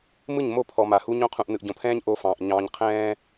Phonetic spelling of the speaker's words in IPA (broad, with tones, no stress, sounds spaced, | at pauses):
m ɯ˦˨ ɲ m o˦˨ pʰ ɔ˨ m a˨ h u˦ ɲ õ˦ qʰ ũ˨ ʔ n ɯ˨ ʔ ɟ õ˨ pʰ ɛ̃ː˦ ɲ ʔ o˦ f ɑ̃ː˨ ʔ ɲ ɑ̃ː˦ ɲ qʰ ɛ̃ː˦